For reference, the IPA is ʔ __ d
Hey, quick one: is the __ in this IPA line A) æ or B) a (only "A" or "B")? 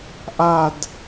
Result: B